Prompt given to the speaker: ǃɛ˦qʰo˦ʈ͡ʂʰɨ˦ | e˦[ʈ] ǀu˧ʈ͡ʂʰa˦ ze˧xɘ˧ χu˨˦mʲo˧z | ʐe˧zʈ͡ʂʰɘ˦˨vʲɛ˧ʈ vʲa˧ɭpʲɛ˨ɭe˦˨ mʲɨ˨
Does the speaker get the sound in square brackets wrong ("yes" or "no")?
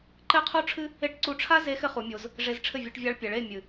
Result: no